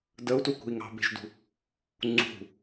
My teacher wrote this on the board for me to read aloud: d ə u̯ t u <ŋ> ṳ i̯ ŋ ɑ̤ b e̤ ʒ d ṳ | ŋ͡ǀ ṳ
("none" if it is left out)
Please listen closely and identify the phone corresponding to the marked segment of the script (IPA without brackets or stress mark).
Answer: k